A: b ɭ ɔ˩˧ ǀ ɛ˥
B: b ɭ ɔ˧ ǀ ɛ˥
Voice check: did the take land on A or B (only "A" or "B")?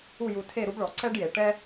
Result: A